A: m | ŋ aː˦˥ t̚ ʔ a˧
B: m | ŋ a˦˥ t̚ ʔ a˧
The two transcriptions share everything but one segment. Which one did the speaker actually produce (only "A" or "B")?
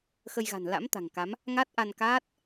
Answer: B